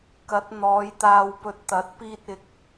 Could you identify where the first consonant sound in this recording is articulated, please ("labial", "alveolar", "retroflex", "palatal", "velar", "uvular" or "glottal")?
velar